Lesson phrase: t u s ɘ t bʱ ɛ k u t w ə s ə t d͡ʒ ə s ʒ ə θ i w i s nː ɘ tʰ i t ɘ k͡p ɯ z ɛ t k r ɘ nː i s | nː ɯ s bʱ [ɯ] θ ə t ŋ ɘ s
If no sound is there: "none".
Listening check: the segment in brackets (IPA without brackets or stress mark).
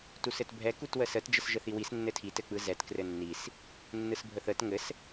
ə